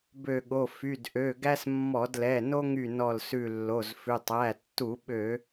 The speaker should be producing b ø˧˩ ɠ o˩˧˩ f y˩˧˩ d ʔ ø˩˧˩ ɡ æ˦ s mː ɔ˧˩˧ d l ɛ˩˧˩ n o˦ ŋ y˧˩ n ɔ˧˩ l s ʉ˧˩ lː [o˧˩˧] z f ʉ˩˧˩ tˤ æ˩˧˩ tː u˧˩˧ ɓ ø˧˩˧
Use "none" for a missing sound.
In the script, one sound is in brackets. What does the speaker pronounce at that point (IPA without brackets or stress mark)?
o˩˧˩